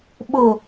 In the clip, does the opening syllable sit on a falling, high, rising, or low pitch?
low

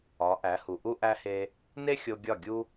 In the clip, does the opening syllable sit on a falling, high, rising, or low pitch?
rising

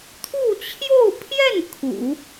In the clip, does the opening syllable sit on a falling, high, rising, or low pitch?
falling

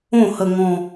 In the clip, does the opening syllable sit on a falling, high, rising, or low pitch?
falling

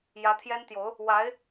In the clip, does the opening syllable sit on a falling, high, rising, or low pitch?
rising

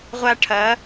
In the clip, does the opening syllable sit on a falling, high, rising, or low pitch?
high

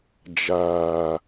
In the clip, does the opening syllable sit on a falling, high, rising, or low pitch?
low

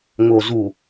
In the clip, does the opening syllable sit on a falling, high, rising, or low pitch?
low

